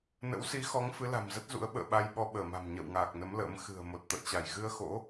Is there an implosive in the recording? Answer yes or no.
yes